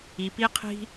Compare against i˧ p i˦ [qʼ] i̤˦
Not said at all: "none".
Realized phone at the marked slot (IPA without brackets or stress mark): qʰ